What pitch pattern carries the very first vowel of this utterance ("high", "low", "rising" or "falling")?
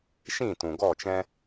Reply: falling